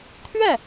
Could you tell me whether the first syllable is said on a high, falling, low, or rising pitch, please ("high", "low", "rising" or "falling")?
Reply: falling